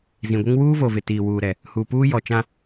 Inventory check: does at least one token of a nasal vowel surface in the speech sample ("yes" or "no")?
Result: yes